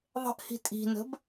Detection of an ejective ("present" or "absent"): present